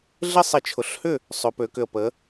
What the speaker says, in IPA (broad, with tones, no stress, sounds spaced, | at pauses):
ɮ ɪ˥˨ sˤ ɪ˧˩˧ t͡ʃʰ ʊ˨˥ ɬ h ʏ˥˨ | sˤ ʏ˩˧ p ø˩˧ k ʏ˨˩ ə̯ p ə˩˧